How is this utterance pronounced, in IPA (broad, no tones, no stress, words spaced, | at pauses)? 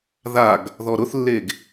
ðaɡ | ðɔɾʊθlːeɡ